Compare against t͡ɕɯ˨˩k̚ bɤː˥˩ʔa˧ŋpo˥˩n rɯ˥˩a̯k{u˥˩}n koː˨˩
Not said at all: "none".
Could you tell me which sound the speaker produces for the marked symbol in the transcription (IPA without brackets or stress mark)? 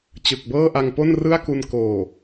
u˧